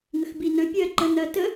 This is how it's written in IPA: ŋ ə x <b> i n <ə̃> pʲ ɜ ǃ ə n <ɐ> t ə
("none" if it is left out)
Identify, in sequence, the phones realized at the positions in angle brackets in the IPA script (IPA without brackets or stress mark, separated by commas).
b, ə̃, ɐ